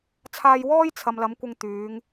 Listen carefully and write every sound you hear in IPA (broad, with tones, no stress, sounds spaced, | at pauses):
t͡sʰ aː˧ j w ɔː˥ j t͡sʰ ɐ˨ m l ɐ˨˥ m kʷ ɪ˧ ŋ t̪ yː˨˥ ŋ